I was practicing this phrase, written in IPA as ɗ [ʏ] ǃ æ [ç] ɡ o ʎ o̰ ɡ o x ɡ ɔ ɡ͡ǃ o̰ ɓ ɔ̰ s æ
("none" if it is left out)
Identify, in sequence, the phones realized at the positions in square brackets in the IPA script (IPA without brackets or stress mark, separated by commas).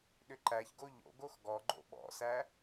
ʏ, ç